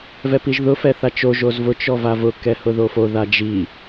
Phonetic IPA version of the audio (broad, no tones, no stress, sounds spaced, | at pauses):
v ɛ p i ʒ ð ʊ f ɛ θ a t͡ʃ o ʒ o z v ʊ t͡ʃ ɔ v a v ʊ k ɛ h ʊ ð o f o ð a d͡ʒ i